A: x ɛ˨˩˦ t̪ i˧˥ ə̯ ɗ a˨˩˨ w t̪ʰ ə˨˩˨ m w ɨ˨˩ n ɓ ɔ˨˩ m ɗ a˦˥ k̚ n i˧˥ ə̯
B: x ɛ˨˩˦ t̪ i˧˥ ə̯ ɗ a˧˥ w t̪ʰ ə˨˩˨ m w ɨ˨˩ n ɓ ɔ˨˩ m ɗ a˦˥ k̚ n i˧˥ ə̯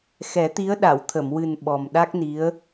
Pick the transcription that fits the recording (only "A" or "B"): A